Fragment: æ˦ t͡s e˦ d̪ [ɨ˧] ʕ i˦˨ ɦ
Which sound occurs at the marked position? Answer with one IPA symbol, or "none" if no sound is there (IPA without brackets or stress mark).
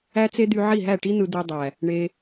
y˧